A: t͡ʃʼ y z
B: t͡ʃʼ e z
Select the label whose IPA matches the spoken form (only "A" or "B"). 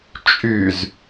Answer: A